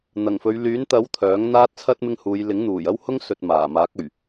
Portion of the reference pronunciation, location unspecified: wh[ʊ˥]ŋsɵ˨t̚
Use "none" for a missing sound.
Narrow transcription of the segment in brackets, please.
ʊ˥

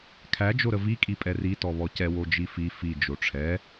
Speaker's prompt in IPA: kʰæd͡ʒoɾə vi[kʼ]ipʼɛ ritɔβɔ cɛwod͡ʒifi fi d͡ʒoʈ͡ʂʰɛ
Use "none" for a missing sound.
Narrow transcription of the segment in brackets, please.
kʼ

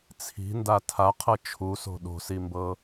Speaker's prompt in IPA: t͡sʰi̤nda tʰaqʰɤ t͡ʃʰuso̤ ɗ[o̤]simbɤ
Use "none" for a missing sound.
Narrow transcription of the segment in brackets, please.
o̤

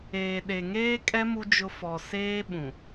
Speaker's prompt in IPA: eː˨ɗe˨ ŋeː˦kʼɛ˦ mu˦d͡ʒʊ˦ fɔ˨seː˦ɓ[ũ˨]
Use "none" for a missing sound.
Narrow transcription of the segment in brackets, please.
ũ˨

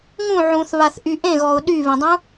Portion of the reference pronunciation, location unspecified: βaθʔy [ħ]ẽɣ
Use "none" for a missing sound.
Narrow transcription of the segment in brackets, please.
ʔ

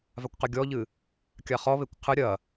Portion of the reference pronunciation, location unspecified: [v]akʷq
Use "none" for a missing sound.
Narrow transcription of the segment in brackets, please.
v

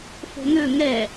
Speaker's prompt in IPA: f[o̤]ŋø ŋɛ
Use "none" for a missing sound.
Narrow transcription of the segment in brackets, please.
o̤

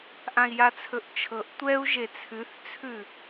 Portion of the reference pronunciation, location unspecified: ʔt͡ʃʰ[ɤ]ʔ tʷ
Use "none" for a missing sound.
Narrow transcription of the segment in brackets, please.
ɤ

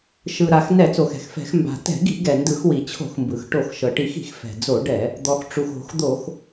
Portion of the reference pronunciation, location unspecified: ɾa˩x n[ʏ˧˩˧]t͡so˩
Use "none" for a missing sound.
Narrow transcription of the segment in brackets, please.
ɛ˧˩˧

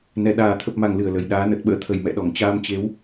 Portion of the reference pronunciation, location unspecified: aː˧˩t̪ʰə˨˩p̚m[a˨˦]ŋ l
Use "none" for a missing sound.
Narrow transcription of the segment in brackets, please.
a˧˩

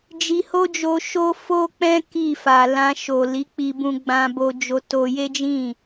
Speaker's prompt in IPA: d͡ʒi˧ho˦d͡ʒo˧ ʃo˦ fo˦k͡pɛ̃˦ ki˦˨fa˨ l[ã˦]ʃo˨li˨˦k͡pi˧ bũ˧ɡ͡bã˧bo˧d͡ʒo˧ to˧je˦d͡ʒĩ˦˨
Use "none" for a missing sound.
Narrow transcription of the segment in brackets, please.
ã˧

